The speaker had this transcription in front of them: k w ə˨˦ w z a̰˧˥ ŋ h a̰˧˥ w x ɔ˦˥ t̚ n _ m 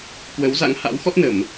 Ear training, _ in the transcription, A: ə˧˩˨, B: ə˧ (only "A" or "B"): A